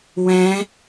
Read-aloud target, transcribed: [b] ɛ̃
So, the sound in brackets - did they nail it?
no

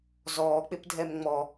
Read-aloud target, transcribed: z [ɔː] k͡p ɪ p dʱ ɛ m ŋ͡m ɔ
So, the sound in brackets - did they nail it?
yes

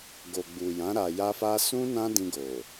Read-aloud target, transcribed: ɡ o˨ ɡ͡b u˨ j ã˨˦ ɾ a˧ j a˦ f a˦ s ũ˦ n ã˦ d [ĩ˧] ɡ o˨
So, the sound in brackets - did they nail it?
yes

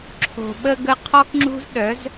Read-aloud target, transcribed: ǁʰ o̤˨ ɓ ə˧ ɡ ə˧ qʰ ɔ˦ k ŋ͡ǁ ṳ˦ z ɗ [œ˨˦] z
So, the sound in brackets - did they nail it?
yes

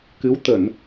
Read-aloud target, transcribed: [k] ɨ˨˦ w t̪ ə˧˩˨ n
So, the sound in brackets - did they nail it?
yes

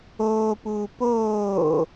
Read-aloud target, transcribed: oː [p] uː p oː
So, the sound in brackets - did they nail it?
yes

